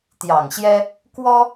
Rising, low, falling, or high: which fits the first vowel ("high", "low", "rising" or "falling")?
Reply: low